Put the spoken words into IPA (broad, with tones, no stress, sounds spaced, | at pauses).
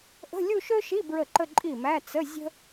ʔ ə̤˧˥˧ lʲ u˥˧ ʃ ø˥ ʃ i˧˥˧ b ɹ ə˥˩ ǃ ə˥˧ ǃʼ i˥˩ m æ˧˥˧ t͡s ə˧˥˧ zʲ ə̤˥